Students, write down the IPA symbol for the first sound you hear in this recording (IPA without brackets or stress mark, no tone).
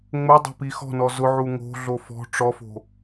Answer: ŋ͡m